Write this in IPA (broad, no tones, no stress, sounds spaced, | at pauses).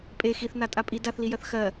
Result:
pʼ e x i θ n a tʼ a pʼ i d a θ l i j ɜ θ x ɜ